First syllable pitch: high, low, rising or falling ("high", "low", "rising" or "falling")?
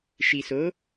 low